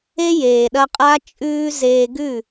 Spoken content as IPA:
e˦ j eː˨ ɗ ɐ˧ qʼ a˦ t͡ʃʼ ʉː˦ z eː˧ ɡ ʉ˦˨

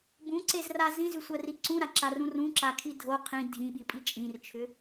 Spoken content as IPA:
b ũ ǀ e z r a z ĩ z ʉ sʷ ɜ r i ǀ ũ ɾ a ǁ a r ũ r ũ ǁ a kʰ i dʱ o qʰ ĩ dʱ ĩ ɓ i pʼ i t͡ʃʼ ĩ r t͡ʃʰ ʏ

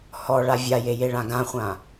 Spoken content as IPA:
h ɔ ɭ a vʲ a j e j e ɭ ã ɡ ã χʷ ã

